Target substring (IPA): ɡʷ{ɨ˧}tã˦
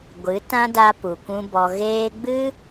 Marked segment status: incorrect: ɨ˨˦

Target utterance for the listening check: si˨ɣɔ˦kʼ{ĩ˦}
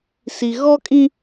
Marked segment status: correct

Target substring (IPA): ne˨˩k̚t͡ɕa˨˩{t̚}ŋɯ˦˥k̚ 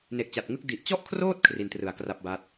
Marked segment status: correct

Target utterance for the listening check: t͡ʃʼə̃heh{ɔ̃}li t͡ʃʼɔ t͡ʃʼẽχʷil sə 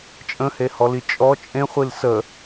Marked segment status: incorrect: ɔ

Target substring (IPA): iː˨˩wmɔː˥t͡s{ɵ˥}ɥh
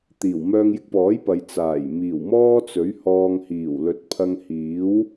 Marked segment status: incorrect: ɵ˨˥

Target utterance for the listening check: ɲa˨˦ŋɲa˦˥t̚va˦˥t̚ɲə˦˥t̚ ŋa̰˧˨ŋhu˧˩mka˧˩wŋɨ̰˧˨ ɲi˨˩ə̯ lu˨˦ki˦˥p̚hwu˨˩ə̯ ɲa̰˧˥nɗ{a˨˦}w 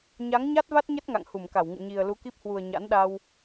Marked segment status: incorrect: a˧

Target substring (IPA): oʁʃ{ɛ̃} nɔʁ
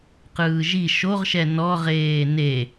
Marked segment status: incorrect: ɛ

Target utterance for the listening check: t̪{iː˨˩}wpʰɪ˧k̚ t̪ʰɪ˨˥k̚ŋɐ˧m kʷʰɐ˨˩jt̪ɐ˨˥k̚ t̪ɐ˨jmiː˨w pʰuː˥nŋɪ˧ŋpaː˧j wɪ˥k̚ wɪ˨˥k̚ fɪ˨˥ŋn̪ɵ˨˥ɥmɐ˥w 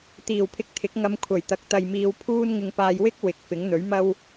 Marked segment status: correct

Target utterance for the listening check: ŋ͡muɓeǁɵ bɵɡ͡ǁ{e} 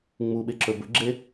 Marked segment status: correct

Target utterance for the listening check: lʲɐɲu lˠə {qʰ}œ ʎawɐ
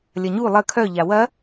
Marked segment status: incorrect: kʰ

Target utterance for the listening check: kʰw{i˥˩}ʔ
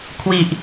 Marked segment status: incorrect: i˨˩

